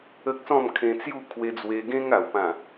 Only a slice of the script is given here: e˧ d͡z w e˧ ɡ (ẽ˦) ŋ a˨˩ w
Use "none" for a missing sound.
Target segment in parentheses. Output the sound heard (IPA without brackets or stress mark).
ẽ˦